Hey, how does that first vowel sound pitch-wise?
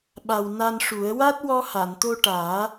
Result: low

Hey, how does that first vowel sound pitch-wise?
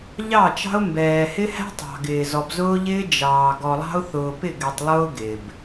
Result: falling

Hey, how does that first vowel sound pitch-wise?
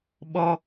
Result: high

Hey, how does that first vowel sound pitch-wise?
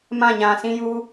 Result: falling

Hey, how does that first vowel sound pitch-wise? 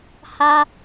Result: high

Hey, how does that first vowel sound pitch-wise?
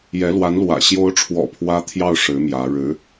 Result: rising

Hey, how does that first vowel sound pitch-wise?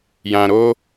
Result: low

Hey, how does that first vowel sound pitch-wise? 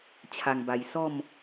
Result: low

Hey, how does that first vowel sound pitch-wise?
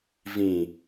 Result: low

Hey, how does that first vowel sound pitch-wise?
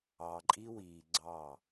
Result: low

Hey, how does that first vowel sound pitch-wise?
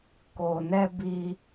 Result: low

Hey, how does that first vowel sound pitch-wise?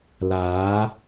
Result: rising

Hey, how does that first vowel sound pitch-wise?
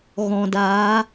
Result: low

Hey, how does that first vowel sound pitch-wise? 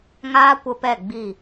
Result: high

